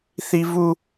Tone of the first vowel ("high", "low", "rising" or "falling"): high